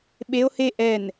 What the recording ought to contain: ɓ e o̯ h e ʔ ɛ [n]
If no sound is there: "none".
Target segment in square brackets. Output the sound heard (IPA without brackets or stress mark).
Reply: n